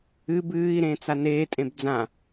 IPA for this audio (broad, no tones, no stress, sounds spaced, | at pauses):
ɨ b ɨː i̯ ɾ ẽː t͡s a n eː tʼ ẽ b d͡z ã